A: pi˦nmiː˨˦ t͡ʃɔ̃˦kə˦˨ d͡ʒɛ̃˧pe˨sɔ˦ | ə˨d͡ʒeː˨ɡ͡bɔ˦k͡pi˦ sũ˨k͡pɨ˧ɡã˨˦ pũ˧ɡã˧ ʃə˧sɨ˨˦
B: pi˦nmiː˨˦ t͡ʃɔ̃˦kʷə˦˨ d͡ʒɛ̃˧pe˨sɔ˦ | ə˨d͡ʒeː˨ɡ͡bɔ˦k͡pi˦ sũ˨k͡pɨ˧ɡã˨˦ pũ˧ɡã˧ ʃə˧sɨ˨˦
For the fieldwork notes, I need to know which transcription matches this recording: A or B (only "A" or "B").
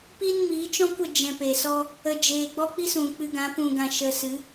B